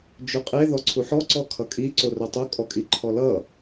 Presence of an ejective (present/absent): present